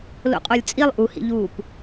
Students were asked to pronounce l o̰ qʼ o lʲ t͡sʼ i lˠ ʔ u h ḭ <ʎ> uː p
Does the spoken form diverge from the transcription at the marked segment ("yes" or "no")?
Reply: no